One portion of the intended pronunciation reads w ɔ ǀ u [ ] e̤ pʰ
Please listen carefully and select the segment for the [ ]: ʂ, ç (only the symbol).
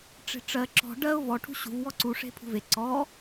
ʂ